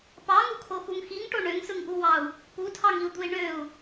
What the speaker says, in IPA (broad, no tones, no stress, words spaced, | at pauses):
pɑŋukʰoxuŋ xiŋʈo ɳøŋsɯŋʔuwɑu̯ | putʰɑŋiu̯d̪ui̯ ɳøu̯